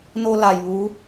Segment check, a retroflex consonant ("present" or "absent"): absent